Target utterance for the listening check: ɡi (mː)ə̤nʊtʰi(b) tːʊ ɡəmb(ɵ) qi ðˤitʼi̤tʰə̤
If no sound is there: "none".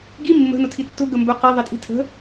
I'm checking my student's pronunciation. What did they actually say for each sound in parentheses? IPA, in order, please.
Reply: mː, none, ɵ

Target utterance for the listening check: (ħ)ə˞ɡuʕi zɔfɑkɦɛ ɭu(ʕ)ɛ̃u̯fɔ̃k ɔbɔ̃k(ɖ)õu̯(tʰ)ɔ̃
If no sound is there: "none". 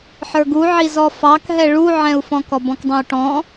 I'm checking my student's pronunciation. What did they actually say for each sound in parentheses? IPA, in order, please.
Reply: ħ, ʕ, dˤ, ʈ

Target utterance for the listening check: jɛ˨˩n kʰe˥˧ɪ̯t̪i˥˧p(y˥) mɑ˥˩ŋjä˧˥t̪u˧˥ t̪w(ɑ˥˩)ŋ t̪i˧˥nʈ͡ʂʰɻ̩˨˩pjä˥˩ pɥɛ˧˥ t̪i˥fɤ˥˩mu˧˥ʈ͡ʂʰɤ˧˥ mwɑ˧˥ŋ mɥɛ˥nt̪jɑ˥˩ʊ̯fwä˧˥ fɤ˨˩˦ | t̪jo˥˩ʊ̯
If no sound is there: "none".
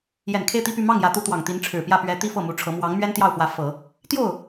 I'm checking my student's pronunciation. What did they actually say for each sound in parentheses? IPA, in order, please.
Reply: y˥˧, ɑ˨˩

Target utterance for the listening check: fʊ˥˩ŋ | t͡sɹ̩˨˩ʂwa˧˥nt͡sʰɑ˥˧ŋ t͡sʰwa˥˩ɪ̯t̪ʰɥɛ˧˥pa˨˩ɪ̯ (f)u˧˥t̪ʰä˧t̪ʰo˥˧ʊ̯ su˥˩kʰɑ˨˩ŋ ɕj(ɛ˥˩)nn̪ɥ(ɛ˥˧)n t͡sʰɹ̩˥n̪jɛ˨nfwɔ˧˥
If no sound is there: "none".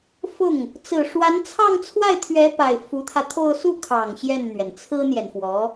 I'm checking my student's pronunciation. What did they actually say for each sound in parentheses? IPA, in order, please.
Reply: f, ɛ˥˩, ɛ˩

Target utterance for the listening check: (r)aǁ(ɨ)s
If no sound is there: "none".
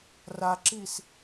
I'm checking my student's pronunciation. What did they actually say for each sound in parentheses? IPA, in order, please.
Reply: r, i

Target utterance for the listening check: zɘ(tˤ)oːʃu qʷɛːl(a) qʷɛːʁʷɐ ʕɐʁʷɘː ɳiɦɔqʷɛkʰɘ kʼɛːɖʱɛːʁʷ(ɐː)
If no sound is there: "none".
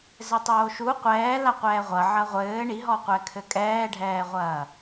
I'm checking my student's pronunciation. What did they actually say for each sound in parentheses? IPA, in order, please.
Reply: tˤ, a, ɐː

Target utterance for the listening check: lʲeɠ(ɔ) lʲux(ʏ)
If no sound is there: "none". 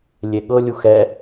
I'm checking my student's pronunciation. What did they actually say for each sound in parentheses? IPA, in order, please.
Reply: ɤ, ɛ

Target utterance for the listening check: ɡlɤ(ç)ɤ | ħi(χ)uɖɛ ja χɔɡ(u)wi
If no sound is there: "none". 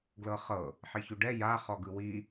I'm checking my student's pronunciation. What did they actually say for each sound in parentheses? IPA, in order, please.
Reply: χ, ç, ɯ

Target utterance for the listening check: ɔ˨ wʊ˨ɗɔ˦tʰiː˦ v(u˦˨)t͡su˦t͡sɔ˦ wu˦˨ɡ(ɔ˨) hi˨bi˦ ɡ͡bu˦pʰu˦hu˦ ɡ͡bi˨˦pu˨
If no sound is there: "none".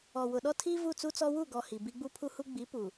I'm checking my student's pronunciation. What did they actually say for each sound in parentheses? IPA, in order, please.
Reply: u˦˨, ɔ˨

